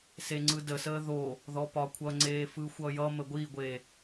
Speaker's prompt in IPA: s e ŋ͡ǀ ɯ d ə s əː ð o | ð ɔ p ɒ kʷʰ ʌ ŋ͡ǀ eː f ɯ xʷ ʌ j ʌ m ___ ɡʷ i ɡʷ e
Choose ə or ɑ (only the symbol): ə